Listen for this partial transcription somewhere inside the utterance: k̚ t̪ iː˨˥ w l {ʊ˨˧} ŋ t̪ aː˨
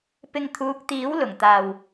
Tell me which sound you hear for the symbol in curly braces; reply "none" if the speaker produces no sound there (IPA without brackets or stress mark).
ʊ˨˩